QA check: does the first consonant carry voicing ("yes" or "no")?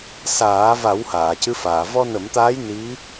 no